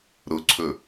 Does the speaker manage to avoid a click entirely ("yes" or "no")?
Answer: no